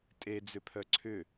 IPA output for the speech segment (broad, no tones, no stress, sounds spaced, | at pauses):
tʼ e d͡z ʏ pʰ œ ǀʰ ʏ